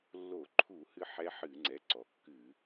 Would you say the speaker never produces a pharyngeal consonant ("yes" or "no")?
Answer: no